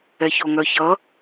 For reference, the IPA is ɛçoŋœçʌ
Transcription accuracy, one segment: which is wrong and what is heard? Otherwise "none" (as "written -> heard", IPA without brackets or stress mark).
none